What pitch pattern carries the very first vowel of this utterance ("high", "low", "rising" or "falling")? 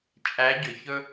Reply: rising